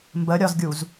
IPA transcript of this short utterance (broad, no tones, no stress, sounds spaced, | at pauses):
m b ə ɾʲ ɒ z ɡʲ u z